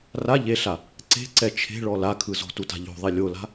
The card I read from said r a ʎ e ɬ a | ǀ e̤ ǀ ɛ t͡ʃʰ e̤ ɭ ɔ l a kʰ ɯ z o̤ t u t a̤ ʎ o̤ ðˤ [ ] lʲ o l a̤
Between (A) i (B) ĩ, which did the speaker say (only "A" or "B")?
A